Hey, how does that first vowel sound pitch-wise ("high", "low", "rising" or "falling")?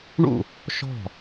falling